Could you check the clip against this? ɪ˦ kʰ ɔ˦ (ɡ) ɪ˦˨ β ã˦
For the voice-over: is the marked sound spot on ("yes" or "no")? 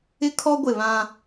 no